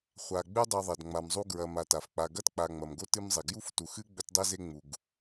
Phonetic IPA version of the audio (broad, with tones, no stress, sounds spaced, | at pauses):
χʷ a˨ ɡ͡b ʉ˥ dˤ ʉ˨ ðˤ ɐ˩ d ŋ͡m a˨ m zˤ u˦ ɡ ɹ ɐ˨ m a˨ t a˩ f k͡p a˨ ɡ ɐ˥ t k͡p a˨ ŋ͡m ɐ˩ m ɡ o˥ t ɨ˦ m zˤ e˩ ɡ j u˥ f t u˨ x ɨ˥ ɡ͡b ɵ˦ t dˤ e˥ z e˦ ŋ͡m u˩ ɡ